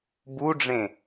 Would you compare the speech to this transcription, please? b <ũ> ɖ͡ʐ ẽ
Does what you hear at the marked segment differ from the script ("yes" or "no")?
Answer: yes